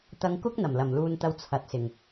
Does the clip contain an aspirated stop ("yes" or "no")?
yes